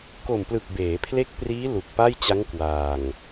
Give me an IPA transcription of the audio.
ko˨˩mplɯ˨˩k̚ beː˩˦pʰle˦˥k̚priː˦˥ lu˨˩k̚pa˥˩jt͡ɕa˦˥ŋ kwaː˨˩ŋ

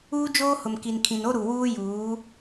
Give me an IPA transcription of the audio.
uː˦d͡ʒoː˦hʊ˨m ki˨nkʰĩ˨no˦ ɾu˨wuː˦juː˨˦

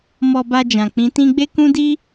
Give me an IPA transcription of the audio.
mɔ˧ba˧d͡ʒã˨ k͡pĩ˨˦tĩ˦ ɡ͡be˦ kũ˦di˦

